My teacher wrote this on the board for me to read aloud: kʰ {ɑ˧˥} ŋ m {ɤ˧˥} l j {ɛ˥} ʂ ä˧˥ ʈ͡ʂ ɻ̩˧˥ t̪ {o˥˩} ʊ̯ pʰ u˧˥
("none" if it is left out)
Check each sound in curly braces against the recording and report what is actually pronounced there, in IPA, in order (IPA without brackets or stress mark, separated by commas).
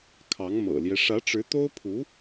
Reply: ɑ˧˥, ɤ̰˨˩, ɛ˦, o˥